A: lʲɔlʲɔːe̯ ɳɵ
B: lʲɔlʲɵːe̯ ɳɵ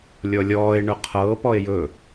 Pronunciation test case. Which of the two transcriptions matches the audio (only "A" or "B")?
A